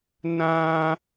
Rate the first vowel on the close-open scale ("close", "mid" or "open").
open